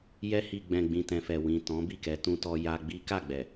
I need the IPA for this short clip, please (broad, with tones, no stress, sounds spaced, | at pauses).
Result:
j ɛ˧ h i˨ ɡ͡b ɛ̃˨ ɡ͡b ĩ˨ t ɛ̃˨ f ɛ˨ w ĩ˨ t ɔ̃˨˦ b i˦˨ k ɛ˨˦ t ũ˧ t ɔ˧ j a˧ ɡ͡b i˦ k a˦˨ ɡ͡b ɛ˨